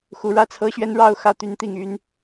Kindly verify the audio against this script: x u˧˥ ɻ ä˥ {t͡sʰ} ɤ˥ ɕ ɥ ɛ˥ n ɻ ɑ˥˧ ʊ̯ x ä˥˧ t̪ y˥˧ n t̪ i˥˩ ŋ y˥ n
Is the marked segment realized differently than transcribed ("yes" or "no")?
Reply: no